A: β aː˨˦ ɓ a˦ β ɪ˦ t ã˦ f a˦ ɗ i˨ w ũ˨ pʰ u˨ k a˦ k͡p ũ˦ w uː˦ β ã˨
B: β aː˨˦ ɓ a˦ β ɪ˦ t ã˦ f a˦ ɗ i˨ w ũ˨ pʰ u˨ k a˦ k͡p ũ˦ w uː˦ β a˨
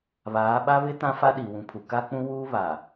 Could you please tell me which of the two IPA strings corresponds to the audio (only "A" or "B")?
B